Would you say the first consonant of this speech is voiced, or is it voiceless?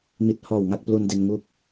voiced